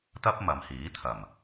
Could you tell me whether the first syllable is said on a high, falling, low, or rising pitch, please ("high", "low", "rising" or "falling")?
high